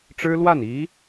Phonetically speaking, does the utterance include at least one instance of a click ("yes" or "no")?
no